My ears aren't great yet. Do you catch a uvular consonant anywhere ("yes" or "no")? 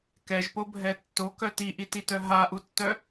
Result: no